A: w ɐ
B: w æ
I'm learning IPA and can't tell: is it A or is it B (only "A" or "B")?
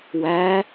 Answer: B